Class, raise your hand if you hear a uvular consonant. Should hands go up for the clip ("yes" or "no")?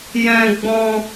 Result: no